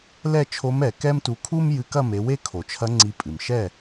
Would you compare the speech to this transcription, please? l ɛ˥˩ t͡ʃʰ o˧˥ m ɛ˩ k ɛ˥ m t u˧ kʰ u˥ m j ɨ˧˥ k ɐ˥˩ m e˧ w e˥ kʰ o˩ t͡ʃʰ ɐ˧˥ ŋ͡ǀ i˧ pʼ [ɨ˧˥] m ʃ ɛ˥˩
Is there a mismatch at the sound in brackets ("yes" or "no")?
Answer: yes